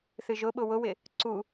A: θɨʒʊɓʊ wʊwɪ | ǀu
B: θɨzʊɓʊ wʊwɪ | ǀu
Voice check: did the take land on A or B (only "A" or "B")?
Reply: A